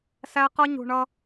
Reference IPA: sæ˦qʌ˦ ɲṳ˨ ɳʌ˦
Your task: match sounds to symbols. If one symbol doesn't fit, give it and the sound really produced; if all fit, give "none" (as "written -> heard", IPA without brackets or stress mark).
none